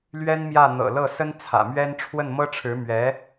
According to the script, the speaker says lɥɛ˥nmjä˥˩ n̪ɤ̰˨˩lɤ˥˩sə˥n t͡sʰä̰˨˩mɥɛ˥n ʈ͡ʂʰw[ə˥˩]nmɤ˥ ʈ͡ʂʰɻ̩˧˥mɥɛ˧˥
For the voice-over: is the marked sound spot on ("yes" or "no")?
yes